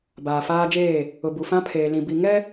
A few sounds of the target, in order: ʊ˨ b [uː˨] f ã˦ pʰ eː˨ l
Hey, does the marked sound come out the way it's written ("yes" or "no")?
no